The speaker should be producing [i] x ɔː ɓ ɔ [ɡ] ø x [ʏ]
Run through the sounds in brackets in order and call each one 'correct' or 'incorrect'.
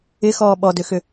incorrect, incorrect, correct

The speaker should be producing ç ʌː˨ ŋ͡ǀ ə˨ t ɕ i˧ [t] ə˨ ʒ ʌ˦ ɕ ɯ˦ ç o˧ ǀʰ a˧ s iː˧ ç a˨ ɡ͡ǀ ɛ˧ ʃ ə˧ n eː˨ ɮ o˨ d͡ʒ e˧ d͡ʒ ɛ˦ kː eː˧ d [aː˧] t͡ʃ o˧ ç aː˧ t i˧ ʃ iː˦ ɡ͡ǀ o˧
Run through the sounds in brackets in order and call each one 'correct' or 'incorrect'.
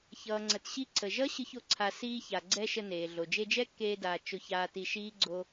incorrect, incorrect

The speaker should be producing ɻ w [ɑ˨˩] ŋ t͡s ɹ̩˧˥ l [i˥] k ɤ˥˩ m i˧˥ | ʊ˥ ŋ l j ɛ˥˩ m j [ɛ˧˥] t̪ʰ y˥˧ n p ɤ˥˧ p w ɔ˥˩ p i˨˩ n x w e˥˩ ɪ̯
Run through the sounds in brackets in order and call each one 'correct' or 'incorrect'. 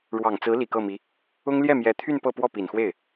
correct, incorrect, correct

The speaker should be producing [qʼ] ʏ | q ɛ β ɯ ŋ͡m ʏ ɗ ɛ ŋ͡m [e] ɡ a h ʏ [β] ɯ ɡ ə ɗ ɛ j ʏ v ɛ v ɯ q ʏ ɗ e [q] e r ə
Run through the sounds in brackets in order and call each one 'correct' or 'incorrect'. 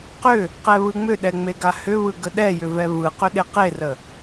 incorrect, correct, correct, correct

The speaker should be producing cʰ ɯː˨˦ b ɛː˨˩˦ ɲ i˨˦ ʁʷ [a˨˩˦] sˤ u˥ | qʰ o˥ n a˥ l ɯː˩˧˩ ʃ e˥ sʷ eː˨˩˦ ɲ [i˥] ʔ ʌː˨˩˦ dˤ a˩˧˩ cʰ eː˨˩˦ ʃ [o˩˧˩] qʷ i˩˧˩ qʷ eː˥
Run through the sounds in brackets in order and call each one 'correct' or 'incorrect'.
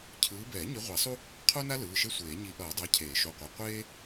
correct, incorrect, correct

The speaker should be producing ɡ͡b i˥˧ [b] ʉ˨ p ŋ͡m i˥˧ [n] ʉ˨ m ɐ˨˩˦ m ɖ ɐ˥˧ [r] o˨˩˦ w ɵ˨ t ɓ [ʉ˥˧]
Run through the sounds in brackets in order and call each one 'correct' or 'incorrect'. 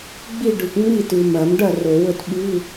incorrect, incorrect, correct, incorrect

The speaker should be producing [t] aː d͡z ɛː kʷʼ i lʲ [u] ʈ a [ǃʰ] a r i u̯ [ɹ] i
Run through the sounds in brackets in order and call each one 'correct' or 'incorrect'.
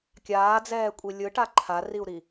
incorrect, incorrect, correct, incorrect

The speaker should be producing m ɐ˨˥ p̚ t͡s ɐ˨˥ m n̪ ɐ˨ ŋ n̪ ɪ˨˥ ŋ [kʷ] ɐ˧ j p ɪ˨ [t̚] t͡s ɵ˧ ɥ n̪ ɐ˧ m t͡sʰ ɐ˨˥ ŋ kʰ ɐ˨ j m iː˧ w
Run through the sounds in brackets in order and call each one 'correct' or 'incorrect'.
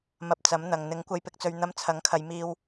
correct, incorrect

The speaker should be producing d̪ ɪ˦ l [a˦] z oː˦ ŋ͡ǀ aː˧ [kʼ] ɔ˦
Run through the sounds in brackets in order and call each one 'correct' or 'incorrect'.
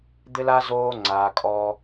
correct, correct

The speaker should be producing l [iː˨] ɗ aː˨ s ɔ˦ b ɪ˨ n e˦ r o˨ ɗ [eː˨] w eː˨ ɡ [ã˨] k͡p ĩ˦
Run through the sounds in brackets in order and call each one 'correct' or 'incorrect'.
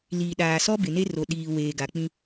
correct, incorrect, incorrect

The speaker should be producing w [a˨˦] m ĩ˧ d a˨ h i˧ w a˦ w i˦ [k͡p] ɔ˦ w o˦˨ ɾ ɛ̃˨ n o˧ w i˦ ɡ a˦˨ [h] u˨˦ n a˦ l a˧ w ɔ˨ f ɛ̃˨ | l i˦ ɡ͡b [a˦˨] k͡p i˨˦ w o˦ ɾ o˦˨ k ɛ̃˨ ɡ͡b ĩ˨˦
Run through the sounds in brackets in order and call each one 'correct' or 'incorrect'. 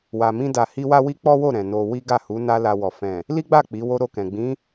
incorrect, correct, correct, correct

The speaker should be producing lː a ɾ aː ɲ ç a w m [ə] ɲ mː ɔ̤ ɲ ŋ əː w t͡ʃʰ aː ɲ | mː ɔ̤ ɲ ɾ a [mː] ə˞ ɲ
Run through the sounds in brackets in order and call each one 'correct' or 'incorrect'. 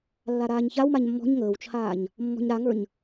incorrect, incorrect

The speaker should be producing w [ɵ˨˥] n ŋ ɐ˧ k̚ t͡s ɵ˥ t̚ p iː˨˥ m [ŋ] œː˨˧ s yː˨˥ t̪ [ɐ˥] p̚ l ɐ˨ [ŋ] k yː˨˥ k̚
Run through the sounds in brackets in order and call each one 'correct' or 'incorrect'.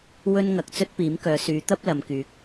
incorrect, incorrect, correct, incorrect

